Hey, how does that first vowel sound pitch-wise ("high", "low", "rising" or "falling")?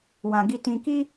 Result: low